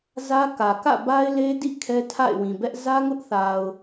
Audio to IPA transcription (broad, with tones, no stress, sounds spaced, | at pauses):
z ä˦ k ä˨ k ä̰˦˨ b a˦ ɪ̯ l e˦ d ḭ˦˨ kʰ ɛ˦ tʰ a̰˦˨ ɪ̯ w ĩ˨ b ɛ˦ ʔ z ä˦ ŋ ʊ˦ ʔ θ a˨ ʊ̯